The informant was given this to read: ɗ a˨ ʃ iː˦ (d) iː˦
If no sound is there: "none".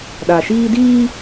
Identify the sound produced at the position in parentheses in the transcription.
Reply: d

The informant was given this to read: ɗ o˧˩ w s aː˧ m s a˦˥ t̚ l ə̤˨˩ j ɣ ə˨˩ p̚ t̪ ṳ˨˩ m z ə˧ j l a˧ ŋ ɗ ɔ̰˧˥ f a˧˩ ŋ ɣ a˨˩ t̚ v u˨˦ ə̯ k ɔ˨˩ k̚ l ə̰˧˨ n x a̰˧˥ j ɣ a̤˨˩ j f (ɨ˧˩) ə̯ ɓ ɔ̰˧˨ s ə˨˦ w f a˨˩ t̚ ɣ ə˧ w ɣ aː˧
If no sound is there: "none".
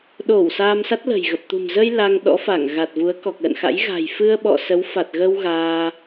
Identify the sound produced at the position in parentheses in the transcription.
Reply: ɨ˧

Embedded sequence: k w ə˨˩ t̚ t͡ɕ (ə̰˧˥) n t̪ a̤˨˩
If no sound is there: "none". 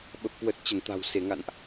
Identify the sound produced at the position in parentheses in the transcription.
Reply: ə˧˩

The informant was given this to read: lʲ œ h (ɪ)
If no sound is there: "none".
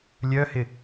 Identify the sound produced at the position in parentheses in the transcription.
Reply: ɪ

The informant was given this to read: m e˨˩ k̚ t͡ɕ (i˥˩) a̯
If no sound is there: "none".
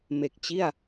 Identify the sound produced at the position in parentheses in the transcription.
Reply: i˥˩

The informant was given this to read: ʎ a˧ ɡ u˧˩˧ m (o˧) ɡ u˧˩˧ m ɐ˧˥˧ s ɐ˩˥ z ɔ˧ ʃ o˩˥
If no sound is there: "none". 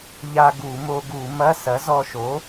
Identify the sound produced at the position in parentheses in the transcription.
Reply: o˧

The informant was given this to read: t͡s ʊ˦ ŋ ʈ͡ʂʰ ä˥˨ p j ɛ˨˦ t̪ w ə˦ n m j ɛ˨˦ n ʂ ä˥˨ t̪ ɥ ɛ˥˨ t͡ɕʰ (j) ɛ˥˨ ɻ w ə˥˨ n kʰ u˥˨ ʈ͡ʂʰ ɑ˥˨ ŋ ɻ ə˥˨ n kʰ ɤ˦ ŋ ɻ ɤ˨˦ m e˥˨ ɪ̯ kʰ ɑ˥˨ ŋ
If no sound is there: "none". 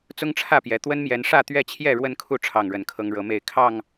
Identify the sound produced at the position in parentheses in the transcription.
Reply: j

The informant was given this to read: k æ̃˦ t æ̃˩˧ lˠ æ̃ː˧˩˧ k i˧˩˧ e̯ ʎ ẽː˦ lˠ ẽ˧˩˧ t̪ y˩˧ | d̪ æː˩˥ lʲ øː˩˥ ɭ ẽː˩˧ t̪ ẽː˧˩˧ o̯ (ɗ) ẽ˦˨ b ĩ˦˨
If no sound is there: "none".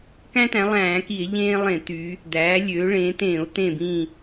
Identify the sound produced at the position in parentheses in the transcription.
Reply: t̪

